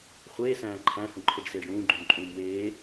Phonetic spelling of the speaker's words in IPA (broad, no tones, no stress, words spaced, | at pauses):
χʷeːsæ̃ː ǃʰæ̃hũǃʰeɖseːɖ ɽũːɡ͡ǃũmǃʼũːm weː